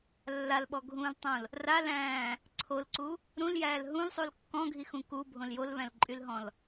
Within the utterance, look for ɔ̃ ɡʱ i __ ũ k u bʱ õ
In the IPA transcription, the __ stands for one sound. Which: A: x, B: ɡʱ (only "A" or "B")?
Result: A